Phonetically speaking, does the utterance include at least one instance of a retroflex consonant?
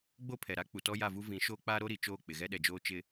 no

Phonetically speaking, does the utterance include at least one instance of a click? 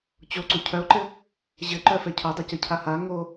yes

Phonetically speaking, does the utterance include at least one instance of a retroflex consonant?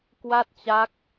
no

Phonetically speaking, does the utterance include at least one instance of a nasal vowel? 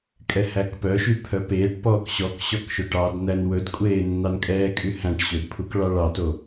yes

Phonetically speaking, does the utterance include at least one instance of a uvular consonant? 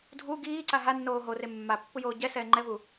no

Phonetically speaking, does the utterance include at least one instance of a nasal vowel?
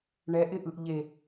no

